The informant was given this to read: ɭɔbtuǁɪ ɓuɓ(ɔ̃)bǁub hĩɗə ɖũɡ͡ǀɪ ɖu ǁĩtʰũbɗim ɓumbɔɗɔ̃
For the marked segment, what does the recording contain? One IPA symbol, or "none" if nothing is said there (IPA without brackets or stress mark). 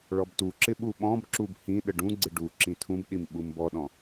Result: ɔ̃